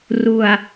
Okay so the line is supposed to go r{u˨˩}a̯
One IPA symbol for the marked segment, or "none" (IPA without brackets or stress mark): u˨˩